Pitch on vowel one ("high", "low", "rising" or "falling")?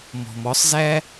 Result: low